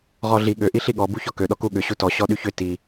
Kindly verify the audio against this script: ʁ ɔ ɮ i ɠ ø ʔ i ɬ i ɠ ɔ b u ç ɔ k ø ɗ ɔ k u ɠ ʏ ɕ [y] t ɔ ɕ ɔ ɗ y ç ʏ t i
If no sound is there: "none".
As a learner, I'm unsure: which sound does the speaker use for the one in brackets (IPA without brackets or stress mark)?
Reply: u